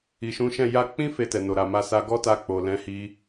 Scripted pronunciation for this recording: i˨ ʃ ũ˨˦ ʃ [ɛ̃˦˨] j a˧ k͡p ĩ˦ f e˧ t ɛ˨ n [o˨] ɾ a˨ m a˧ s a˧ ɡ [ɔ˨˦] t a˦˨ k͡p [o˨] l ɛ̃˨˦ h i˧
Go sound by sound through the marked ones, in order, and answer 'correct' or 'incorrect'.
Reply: correct, correct, incorrect, correct

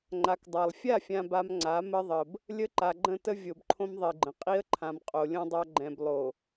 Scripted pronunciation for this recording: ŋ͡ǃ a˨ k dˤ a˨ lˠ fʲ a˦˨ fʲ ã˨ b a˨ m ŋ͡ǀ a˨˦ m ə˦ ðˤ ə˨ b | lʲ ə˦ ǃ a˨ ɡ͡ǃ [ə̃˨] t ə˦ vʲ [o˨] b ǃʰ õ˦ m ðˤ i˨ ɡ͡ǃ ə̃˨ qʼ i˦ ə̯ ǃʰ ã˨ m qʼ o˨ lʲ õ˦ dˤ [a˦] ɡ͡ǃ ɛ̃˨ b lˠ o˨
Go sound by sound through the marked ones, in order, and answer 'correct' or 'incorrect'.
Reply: incorrect, correct, correct

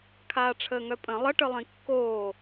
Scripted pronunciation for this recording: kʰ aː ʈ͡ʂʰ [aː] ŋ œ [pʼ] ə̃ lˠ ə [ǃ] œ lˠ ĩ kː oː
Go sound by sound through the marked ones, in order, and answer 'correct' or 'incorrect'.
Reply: incorrect, correct, incorrect

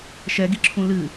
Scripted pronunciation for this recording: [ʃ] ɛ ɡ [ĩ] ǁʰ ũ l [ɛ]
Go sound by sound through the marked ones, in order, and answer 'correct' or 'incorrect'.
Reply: correct, incorrect, incorrect

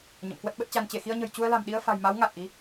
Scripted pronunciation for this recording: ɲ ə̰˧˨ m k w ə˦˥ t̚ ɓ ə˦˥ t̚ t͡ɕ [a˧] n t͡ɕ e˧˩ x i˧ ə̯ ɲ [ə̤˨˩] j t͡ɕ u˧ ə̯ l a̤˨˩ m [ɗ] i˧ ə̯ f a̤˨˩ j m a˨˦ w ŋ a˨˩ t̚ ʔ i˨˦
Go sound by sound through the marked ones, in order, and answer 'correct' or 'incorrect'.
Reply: correct, correct, correct

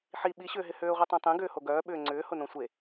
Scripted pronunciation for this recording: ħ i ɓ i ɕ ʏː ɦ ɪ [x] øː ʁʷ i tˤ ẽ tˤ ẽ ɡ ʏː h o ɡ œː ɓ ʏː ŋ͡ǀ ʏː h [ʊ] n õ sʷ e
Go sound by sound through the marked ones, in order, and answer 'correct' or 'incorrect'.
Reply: incorrect, correct

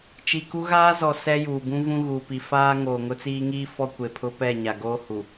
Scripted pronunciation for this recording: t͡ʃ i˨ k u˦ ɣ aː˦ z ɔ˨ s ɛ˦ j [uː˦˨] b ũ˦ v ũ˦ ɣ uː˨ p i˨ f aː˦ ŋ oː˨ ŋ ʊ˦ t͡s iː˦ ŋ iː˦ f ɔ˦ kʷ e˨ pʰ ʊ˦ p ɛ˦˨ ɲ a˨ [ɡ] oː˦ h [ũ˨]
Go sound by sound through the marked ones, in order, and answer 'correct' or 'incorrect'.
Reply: incorrect, correct, incorrect

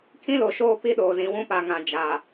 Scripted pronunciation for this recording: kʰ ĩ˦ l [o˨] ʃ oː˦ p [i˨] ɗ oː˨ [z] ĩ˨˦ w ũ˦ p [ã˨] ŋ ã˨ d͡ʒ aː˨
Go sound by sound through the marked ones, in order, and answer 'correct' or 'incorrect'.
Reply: correct, incorrect, correct, incorrect

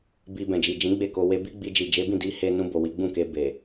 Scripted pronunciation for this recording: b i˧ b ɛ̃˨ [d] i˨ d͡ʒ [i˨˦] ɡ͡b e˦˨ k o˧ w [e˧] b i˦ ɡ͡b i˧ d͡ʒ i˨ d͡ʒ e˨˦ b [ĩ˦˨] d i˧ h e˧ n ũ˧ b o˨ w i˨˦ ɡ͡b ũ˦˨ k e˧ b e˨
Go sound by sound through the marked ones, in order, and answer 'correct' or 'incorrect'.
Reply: incorrect, incorrect, correct, correct

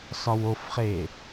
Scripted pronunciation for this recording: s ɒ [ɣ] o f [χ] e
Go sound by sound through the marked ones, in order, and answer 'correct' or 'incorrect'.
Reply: incorrect, correct

